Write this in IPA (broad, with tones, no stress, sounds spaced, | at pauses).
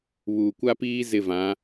β uː˨ kʷ a˦ p iː˦ z ɪ˦˨ v ã˨˦